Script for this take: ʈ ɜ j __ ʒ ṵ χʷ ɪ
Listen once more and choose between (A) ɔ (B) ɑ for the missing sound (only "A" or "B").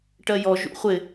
A